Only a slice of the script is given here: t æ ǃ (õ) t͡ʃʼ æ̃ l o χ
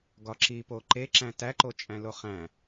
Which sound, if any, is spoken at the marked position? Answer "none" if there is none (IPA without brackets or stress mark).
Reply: o